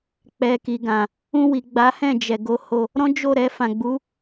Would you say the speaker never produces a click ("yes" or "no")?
yes